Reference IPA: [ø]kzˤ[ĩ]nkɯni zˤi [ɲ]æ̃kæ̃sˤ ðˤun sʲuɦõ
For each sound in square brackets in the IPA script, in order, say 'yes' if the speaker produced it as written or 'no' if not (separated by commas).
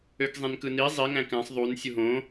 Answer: yes, yes, no